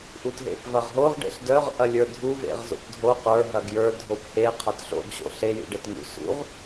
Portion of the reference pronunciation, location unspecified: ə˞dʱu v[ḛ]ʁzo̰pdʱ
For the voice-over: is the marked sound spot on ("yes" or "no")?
yes